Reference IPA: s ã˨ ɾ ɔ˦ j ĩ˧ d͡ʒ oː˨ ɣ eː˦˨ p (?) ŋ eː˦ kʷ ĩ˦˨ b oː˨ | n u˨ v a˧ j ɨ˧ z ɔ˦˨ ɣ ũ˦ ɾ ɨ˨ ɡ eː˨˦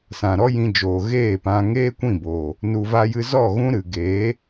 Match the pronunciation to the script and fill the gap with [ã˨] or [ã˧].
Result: ã˧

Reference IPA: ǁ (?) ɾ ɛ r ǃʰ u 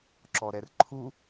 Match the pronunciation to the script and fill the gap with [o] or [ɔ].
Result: ɔ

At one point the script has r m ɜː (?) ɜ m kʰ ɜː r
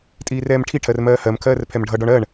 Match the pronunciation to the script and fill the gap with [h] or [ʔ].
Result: h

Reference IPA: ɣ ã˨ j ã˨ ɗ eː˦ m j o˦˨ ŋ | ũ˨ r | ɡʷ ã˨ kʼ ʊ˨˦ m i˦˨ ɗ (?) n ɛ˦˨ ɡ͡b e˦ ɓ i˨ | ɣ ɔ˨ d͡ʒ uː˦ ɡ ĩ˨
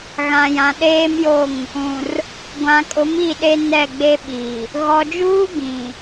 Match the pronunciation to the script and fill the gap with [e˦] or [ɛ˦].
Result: e˦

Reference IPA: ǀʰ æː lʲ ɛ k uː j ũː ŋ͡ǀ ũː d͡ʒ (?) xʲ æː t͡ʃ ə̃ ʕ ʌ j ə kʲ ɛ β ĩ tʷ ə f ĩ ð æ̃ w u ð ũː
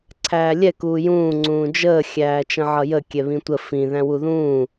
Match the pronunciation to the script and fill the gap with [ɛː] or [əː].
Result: əː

